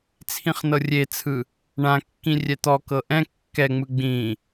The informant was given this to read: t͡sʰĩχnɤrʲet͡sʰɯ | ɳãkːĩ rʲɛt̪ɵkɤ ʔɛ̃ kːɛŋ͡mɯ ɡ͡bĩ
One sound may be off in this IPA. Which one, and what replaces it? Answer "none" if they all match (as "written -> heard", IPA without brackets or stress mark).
ɵ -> ɔ